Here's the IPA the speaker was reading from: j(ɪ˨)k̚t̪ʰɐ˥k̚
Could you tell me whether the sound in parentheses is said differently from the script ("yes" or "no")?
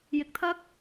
no